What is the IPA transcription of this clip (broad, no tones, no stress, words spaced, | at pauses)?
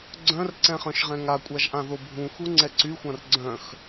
ɡ͡ǀœ̃rǀɛ̃χœ̃ʃʁɛ̃ ŋakʷʼaʒʔãðo bʱũxuŋ͡ǀɛ ǀyxʷãr ɡ͡ǀœ̃x